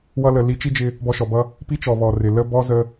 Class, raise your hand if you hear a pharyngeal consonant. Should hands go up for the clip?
no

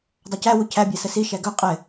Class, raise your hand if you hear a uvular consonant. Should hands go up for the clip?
yes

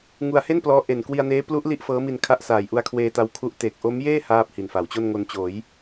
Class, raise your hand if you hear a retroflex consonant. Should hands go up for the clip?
no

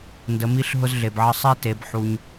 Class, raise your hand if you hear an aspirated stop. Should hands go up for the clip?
no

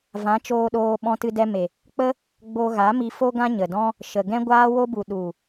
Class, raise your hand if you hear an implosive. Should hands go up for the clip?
yes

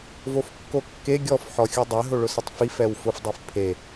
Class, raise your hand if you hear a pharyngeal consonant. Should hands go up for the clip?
yes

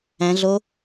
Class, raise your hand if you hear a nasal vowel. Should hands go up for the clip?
yes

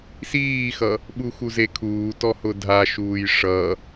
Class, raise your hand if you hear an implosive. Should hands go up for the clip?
yes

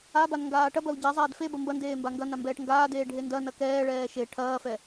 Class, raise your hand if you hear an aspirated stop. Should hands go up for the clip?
yes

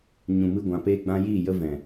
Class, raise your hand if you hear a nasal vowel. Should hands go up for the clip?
yes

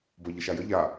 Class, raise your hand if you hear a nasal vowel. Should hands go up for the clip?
no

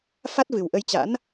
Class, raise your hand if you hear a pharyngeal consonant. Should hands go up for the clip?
no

